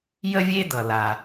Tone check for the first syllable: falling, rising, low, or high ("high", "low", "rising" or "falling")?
high